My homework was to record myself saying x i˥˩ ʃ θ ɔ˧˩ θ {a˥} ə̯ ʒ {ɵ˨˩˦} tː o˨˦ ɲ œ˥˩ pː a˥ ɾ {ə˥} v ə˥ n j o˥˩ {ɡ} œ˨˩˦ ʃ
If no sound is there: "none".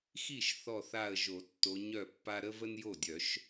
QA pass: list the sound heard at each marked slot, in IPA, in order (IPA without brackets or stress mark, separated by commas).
a˧˩, o˨˩˦, ə˥, dʲ